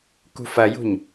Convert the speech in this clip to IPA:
kṳfɐjṳɲ

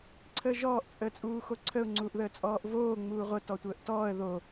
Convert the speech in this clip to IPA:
ǀʰəːʒɔːʔ t͡sʼəːt͡sʼuːxoǀʰəʊ̯ ŋ͡ǀuːʔðəːt͡sʼɔːʔvoː ŋ͡muːʁʷə tɔtʷəːʔtɔːə̯ ðo

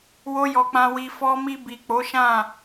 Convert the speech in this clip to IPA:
wo˧jɔ˨ k͡pã˨wi˨ fɔ˧mi˧bi˨ k͡po˨˦ʃã˦˨

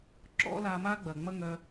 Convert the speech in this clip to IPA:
ǁɔ̰˦la˧ma˦ ɡ͡bɐ˨ŋ͡mɐ˦ŋœ˧

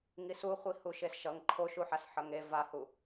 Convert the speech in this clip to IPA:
ŋisuχʷi huʃesʃʌŋ ǃʰoʃuħas ħʌŋe vahu

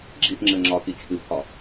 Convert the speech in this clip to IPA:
ɡ͡ǁitŋ͡ǁɘ ŋ͡ǁɒ kit͡ʃʰɨpʰɒ

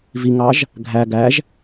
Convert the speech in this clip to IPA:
viŋɑʒ | ɡʱæ ɡæʒ

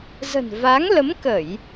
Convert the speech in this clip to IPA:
zə̤˨˩nva˨˦ŋlə˨˦mkə˧˩˨j

